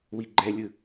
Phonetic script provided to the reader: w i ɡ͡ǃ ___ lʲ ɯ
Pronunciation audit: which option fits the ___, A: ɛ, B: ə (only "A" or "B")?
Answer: A